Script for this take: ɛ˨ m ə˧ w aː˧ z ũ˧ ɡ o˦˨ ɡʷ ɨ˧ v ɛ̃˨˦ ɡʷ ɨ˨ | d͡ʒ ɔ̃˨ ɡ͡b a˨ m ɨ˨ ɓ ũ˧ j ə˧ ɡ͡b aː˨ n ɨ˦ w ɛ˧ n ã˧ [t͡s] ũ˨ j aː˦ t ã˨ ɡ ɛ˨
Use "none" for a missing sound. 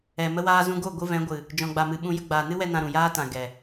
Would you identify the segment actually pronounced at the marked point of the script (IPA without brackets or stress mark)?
ɾ